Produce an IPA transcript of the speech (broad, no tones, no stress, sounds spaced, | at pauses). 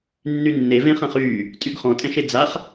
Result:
nː y nː e v ẽ χ ã χ yː | tʼ y ɡ χ ɔ̃ tʼ ɛ̃ ʃ e d͡z a χ